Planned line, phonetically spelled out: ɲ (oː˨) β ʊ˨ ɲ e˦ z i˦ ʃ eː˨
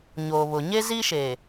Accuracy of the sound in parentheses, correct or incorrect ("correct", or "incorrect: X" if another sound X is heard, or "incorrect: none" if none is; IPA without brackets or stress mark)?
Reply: correct